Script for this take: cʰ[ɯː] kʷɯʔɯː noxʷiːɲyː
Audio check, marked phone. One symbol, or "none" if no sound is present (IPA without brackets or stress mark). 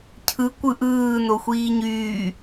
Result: ɯ